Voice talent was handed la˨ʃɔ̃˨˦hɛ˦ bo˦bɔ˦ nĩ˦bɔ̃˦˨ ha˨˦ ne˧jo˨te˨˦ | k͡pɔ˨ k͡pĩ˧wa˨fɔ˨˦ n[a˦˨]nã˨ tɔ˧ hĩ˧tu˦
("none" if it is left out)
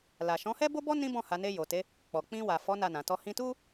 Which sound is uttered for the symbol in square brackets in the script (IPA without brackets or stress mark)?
a˦˨